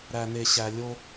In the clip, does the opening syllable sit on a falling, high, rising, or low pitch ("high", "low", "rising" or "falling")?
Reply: low